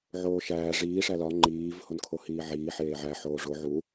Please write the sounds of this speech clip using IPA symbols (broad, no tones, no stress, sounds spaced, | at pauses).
ʕ oː ʃ æː ʐ iː ʂ æ l ɒ ŋ͡ǃ iː v h o n kʰ o h iː ʕ iː ħ eː ʕ æ ħ oː ʐ o ʕ u